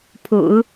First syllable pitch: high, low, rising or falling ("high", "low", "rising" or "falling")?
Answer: low